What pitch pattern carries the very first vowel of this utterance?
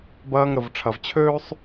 high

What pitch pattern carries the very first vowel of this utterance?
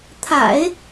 low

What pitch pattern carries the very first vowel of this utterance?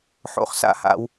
low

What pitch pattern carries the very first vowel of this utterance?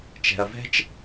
low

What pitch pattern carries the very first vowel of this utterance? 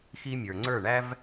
high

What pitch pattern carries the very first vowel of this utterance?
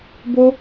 high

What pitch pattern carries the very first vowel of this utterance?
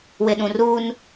low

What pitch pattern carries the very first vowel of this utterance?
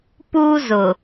high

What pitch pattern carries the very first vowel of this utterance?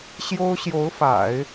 high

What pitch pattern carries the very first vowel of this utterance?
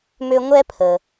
high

